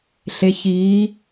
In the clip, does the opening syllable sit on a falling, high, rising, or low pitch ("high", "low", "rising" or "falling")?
rising